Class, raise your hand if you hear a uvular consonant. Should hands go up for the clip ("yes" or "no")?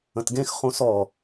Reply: yes